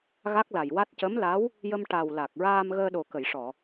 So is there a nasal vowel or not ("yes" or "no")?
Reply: no